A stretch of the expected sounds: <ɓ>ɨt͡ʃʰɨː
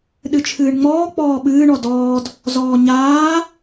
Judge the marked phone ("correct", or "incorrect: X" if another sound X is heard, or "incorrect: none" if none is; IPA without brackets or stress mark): incorrect: ɗ